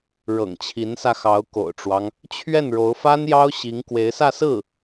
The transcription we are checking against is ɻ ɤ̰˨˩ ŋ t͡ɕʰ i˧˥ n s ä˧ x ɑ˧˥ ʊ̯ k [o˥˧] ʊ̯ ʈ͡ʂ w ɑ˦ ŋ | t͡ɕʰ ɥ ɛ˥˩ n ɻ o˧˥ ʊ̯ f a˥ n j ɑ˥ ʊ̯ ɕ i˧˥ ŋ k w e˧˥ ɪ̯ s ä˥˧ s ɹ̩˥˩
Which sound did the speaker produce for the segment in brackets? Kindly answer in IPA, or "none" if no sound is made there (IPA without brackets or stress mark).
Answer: o̰˨˩